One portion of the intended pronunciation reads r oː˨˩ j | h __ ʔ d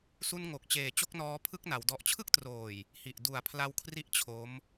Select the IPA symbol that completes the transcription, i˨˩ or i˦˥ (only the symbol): i˨˩